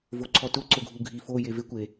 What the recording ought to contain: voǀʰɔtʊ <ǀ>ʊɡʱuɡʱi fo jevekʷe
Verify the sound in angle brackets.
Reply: correct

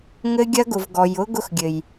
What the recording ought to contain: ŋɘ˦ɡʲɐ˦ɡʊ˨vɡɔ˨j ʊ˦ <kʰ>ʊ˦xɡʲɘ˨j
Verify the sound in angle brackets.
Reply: incorrect: ɡ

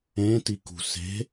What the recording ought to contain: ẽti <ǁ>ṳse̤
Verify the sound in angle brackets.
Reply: incorrect: k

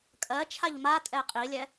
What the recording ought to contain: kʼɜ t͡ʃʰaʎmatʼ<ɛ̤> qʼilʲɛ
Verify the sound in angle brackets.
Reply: incorrect: ɛ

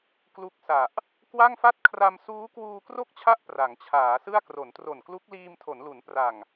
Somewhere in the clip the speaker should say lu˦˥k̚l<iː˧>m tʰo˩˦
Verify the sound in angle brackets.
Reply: correct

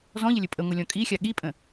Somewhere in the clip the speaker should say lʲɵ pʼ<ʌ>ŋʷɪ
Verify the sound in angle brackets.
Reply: incorrect: ə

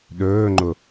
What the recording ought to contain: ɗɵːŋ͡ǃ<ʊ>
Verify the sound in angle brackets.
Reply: correct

